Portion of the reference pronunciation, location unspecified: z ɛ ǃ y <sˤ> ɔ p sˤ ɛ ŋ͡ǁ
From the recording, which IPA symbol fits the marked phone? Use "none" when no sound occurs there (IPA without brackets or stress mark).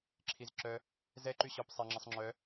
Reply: ɕ